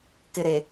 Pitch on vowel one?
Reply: low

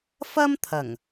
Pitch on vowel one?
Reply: high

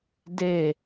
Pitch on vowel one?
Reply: falling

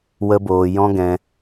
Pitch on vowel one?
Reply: high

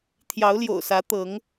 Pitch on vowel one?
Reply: rising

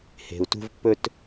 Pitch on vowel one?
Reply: low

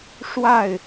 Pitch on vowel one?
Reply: falling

